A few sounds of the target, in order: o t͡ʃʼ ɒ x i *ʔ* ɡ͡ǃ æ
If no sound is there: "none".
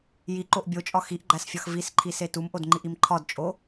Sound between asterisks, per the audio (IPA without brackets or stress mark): ʔ